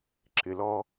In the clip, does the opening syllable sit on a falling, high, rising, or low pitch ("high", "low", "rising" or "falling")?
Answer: low